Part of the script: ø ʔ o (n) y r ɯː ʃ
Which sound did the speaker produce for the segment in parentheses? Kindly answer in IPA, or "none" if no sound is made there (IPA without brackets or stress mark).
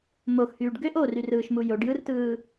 r